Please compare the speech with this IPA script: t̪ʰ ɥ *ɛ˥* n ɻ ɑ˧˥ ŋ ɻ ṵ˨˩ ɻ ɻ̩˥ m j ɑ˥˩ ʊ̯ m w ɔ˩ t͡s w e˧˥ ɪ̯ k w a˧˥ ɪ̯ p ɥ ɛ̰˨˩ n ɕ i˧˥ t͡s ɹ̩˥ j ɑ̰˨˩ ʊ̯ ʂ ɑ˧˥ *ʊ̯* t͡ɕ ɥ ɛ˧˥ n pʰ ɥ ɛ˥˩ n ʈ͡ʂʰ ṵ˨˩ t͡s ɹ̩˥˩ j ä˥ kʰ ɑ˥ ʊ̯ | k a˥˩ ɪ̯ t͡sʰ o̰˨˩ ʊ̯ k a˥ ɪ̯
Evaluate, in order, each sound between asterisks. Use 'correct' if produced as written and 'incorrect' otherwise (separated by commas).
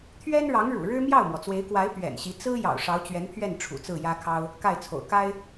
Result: correct, correct